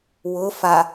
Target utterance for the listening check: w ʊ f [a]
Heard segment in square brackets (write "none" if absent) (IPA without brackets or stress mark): a